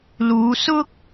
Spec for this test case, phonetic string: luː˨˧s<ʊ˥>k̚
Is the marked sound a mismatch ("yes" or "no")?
no